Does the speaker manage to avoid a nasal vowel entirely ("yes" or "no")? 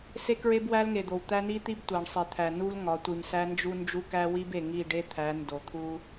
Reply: yes